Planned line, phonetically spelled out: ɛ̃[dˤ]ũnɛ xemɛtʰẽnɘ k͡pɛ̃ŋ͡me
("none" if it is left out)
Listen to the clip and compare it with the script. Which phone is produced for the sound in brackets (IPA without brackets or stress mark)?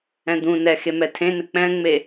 d̪